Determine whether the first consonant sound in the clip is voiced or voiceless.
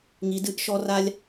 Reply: voiced